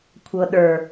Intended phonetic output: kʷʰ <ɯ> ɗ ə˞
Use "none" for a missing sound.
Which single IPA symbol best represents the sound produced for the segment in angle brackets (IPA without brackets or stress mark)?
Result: ɤ